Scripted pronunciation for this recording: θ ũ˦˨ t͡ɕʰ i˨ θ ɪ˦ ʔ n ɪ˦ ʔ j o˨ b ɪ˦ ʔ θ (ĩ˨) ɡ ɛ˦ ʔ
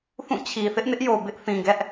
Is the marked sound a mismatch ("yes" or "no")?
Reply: no